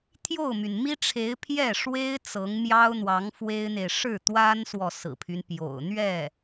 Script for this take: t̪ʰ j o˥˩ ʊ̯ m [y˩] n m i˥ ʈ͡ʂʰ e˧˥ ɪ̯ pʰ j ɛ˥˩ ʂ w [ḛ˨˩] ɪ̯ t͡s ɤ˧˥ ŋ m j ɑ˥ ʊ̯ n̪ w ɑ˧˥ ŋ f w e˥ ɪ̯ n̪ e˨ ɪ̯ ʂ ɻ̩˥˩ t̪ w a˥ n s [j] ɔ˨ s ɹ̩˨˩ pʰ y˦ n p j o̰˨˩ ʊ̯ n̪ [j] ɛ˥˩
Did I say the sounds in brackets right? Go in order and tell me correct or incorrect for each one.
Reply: correct, incorrect, incorrect, incorrect

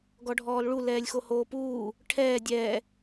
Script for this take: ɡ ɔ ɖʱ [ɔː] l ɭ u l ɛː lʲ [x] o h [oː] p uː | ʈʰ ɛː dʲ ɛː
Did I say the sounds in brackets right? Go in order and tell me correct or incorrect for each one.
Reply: correct, correct, correct

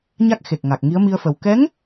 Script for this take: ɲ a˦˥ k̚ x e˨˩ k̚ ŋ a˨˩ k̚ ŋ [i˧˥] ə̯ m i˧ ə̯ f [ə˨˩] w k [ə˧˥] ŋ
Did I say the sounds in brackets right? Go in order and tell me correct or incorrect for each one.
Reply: correct, correct, incorrect

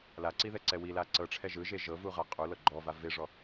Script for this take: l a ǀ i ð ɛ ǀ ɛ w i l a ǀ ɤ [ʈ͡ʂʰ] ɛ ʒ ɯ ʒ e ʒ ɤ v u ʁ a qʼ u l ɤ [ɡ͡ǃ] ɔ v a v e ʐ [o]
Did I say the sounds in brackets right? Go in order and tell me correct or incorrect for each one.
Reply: correct, correct, incorrect

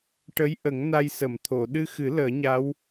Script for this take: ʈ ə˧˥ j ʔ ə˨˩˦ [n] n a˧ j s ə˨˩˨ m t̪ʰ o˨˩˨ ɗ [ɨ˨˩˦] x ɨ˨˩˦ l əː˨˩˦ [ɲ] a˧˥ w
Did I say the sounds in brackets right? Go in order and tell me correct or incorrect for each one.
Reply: incorrect, incorrect, correct

